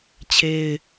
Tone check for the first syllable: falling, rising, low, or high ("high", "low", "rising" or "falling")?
high